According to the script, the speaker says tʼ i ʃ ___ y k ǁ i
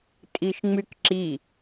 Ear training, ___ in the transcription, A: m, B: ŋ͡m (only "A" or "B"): B